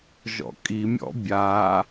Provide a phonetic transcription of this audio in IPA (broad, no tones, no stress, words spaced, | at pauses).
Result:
ʒɔ̰kʼimʲɔ̰ bʲa